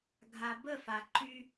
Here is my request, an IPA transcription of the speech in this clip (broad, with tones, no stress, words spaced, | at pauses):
ɡʱa˨bə˦˨fa˨ ǃy˦